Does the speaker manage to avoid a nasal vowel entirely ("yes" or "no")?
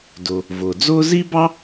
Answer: yes